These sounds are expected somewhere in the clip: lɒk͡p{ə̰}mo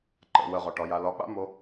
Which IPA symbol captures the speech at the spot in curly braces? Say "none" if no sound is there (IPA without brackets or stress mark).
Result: a̰